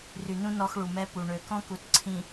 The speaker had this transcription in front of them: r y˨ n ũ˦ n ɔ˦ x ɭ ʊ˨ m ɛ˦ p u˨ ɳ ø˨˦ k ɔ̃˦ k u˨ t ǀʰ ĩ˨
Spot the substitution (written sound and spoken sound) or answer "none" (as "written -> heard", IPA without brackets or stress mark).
ʊ˨ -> u˨